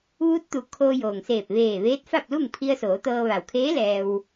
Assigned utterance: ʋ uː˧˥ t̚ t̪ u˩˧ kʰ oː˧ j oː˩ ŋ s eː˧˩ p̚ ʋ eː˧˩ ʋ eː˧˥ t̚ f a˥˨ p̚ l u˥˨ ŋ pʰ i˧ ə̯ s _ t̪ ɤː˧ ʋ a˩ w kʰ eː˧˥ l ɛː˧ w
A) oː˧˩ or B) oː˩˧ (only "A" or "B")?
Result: B